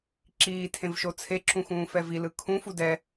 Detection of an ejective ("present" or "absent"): absent